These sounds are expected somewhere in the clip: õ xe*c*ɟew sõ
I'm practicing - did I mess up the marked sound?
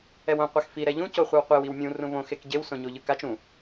yes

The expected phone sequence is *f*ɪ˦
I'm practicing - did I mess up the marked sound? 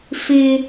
no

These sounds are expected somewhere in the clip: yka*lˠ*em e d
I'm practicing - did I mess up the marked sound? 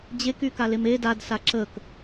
yes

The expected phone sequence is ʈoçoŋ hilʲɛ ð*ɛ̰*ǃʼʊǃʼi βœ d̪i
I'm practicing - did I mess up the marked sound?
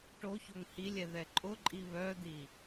yes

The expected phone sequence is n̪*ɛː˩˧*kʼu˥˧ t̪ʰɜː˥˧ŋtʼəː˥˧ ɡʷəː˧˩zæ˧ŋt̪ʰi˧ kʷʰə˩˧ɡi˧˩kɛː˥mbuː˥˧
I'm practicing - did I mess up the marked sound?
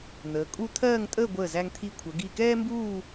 yes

